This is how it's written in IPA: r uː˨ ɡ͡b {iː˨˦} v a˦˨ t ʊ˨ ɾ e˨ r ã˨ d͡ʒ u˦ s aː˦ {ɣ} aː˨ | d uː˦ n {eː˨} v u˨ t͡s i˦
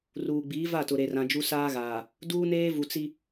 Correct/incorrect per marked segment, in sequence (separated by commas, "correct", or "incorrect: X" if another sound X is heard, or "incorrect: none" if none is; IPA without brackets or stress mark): correct, correct, incorrect: eː˦